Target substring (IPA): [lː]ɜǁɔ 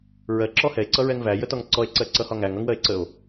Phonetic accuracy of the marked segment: incorrect: ɹ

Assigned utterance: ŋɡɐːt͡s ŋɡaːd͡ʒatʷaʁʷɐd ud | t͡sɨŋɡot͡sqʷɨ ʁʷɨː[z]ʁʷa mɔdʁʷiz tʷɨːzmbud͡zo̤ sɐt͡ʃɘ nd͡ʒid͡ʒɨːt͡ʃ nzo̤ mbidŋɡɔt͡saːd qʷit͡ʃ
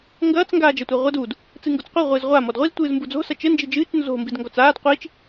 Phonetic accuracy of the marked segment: correct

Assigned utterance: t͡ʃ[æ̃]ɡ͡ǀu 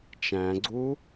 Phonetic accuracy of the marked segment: correct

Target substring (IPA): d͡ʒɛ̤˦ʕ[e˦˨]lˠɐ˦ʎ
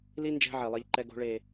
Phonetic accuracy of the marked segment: incorrect: e˨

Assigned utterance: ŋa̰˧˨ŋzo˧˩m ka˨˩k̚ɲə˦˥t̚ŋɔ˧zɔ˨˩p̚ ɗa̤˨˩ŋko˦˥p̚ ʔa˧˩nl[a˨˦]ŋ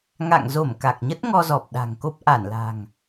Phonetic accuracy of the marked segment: incorrect: a̤˨˩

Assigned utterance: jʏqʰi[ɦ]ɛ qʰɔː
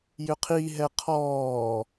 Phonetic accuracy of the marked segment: correct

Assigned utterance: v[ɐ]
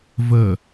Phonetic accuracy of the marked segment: incorrect: ə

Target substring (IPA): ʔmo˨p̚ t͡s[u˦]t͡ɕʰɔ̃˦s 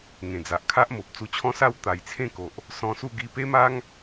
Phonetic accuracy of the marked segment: incorrect: u˧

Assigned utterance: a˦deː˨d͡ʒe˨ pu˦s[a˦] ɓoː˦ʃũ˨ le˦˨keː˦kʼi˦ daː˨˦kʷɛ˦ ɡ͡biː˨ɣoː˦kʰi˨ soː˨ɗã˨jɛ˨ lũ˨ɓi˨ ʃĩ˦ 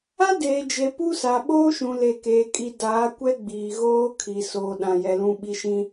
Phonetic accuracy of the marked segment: incorrect: a˨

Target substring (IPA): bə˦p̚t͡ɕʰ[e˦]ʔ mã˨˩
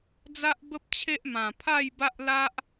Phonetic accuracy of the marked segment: correct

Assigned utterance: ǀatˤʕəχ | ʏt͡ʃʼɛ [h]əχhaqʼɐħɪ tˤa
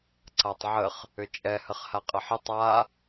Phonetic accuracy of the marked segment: correct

